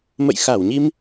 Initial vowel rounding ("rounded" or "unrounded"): unrounded